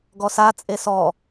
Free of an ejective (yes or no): no